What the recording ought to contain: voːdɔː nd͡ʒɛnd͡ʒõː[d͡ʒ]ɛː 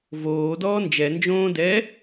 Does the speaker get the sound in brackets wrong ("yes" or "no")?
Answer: yes